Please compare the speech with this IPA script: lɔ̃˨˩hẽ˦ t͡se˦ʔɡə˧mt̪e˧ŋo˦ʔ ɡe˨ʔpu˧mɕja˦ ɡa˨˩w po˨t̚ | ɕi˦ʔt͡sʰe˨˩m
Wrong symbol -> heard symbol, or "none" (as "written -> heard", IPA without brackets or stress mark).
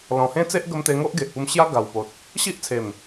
none